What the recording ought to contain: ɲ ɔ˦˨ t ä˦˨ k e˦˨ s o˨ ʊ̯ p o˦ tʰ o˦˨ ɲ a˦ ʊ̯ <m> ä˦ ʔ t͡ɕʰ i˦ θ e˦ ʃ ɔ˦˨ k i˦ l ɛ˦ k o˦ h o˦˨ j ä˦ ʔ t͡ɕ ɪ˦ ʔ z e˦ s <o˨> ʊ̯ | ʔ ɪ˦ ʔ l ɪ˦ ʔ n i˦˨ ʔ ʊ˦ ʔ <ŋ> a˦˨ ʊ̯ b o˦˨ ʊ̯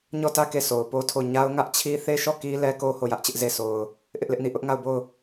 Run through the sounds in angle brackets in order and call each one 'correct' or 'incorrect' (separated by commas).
incorrect, correct, correct